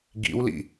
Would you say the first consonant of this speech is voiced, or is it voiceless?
voiced